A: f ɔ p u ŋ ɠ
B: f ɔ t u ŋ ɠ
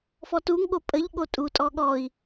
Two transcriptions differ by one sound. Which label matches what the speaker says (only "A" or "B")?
B